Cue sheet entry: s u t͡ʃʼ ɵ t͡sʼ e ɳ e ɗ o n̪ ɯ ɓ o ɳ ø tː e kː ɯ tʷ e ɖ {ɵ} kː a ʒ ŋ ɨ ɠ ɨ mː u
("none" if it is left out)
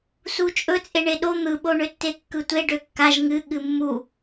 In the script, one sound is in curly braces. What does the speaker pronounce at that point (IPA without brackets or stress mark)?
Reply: ø